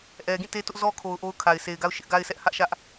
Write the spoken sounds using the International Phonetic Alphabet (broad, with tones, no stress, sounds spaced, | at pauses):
ʔ ɛ˨ ɡ ĩ˦˨ t e˦ t ʊ˦ ʔ z ɔ˦ kʰ o˨ ʊ̯ ʔ o˦ ʊ̯ kʰ a˨ ɪ̯ s e˨ ɪ̯ ɡ a˦ ʊ̯ ʃ ɪ˦ ʔ ɡ a˦ ɪ̯ s ɛ˦ ʔ h ä˦ ʔ ʃ ä˦ ʔ